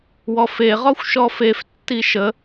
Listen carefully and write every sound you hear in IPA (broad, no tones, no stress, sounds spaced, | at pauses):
w ɔ f e ʁ ɔ xʷ ʃ ɔ f e f tː i ʃ ə